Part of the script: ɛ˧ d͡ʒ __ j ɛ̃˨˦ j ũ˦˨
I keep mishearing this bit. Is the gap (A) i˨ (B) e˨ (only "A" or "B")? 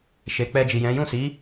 A